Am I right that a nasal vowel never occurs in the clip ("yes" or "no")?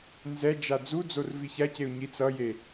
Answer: yes